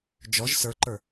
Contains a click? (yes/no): yes